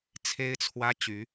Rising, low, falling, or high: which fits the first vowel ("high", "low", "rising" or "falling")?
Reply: high